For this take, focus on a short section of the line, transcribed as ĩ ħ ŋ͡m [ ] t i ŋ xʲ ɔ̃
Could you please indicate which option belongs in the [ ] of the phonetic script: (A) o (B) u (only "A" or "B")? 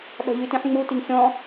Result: B